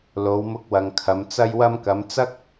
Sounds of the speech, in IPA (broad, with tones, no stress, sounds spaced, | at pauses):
l o˨˧ w m ʊ˧ k̚ w ɐ˨ ŋ kʰ ɐ˨˧ m t͡s ɐ˧ j w ɐ˧ m k ɐ˨˧ m t͡s ɐ˥ k̚